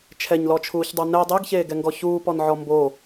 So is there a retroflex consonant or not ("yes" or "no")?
no